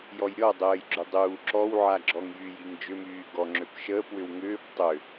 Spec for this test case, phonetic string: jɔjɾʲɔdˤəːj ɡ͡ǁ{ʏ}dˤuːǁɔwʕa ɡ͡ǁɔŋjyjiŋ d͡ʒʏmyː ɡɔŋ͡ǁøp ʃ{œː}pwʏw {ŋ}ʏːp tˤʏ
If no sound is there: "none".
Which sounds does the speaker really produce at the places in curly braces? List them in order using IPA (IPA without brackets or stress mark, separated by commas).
ʏ, əː, ŋ